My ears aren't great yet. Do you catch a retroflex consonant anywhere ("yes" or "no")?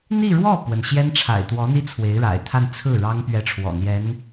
yes